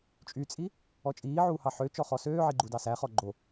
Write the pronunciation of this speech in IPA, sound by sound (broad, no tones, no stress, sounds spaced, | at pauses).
t͡ʃʼ y t͡sʼ i | ɔ t͡ʃʼ iː ʕ uː h ɑ ħ ø t͡ʃ ɔ χ ɔ s øː ʕ i ɡ͡ǃ u d ɑ s æ χ ɔ ɡ͡ǃ o